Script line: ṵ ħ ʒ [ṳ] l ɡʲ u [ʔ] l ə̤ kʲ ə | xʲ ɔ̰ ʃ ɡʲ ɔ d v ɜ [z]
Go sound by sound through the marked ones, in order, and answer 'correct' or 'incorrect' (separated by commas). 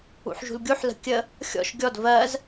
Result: correct, incorrect, correct